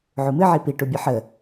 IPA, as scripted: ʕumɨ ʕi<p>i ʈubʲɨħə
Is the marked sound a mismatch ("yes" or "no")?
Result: no